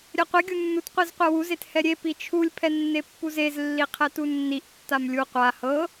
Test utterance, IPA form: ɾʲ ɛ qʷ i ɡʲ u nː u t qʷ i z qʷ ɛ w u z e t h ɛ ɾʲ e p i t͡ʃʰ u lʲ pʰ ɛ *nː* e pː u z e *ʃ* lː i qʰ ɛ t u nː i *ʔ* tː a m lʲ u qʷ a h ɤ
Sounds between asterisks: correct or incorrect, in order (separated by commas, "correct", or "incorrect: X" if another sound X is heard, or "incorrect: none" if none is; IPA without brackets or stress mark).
correct, incorrect: z, correct